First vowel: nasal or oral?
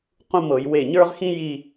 nasal